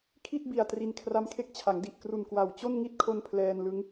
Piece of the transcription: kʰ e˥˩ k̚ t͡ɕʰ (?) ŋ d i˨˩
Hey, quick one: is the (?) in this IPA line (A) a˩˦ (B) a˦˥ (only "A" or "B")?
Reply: A